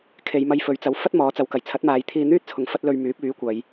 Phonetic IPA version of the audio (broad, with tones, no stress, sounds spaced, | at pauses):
kʰ e˨˧ j m ɐ˧ j f ɵ˨˧ ɥ t͡s ɐ˨˥ w f ɐ˥ t̚ m ɔː˨˥ t͡s ɐ˨˥ w k ɐ˨˩ j t͡sʰ ɐ˨˥ t̚ m aː˨˧ j t̪ʰ iː˧ n̪ yː˥ t̚ t͡sʰ ʊ˨ ŋ f ɐ˥ t̚ l ɵ˧ ɥ m yː˨˥ p̚ yː˨˥ kʷ ɐ˨˧ j